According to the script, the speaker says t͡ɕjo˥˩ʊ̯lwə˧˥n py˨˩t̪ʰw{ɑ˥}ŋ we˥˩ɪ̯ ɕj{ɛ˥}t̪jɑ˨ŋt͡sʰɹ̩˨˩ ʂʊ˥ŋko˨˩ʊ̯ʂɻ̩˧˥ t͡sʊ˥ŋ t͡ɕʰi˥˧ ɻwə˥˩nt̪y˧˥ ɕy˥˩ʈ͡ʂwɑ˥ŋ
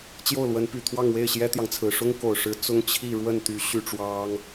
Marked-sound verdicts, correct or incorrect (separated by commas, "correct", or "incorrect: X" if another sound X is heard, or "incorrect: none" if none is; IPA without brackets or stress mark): incorrect: ɑ˥˧, correct